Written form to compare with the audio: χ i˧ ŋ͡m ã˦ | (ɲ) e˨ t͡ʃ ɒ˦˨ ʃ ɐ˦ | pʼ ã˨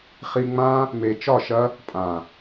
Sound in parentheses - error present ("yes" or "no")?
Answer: yes